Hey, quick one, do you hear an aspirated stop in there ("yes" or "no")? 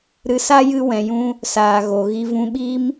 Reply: no